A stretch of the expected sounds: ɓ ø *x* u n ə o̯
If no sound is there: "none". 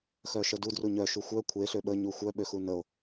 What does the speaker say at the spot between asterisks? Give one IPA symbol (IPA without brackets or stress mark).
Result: x